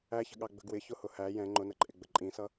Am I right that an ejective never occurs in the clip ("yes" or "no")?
no